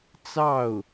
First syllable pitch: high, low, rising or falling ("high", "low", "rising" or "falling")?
falling